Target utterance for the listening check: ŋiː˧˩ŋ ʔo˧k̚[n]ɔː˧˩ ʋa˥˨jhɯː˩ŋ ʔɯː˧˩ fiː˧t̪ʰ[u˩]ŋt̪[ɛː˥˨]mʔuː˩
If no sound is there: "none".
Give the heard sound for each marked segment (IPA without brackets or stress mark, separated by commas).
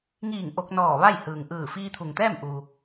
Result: n, u˩, ɛː˥˨